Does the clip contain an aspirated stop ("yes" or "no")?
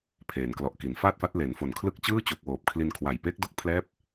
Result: yes